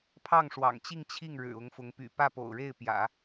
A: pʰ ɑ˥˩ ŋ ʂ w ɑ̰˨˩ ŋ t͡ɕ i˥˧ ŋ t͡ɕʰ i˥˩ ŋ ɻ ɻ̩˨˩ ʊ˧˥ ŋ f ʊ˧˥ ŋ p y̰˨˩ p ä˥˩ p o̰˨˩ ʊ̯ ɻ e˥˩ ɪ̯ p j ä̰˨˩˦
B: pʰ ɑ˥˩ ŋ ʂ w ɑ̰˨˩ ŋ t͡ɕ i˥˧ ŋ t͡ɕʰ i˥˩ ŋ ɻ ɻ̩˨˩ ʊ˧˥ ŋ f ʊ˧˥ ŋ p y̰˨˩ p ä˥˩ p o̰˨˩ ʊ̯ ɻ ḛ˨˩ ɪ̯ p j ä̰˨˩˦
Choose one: A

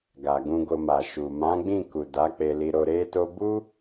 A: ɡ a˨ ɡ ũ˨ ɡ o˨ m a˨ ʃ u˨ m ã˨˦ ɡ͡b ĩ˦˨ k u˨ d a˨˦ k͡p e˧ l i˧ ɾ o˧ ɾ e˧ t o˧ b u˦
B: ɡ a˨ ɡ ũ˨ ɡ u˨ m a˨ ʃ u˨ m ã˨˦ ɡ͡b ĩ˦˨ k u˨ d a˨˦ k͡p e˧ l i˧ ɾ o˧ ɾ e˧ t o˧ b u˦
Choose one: A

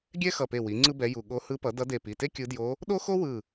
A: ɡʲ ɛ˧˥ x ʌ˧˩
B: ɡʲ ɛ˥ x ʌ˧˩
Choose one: B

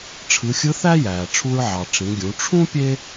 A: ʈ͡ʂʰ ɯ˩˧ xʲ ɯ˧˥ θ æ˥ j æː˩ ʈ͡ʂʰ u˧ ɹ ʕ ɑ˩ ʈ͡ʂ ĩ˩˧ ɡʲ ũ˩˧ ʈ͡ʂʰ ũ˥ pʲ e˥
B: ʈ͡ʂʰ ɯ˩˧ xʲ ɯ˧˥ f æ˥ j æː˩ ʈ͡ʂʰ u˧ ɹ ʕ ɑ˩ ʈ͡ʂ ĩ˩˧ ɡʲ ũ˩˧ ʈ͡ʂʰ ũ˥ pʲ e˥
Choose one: A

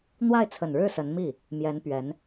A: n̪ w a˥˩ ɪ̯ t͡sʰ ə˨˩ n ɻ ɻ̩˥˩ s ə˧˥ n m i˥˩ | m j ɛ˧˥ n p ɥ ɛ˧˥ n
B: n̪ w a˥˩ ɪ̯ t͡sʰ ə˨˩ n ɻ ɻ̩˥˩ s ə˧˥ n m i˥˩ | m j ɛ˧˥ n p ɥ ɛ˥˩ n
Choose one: A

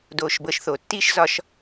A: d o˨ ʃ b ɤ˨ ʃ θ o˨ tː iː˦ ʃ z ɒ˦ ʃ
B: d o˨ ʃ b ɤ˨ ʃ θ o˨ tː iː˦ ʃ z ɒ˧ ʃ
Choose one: B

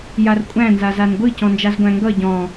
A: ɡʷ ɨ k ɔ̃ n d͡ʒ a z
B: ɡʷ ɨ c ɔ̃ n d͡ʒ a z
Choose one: B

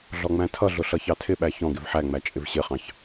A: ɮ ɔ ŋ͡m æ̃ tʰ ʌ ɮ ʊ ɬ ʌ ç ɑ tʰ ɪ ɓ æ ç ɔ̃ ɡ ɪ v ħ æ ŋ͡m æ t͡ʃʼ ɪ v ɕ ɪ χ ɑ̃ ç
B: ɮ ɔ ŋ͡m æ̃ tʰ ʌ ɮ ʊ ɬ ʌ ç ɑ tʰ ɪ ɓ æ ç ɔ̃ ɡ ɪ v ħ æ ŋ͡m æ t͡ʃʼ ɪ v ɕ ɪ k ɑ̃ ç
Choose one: A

